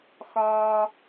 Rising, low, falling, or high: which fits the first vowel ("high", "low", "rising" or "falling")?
low